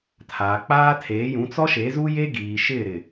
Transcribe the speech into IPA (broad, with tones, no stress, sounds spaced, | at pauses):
tʰ aː˨ k͡p aː˦ tʰ eː˨˦ j ũ˨˦ t͡s ɔ˦ ʃ e˨˦ z u˦ j e˦ ɡ iː˨ ʃ ɪ˦˨ ɾ ɪ˦˨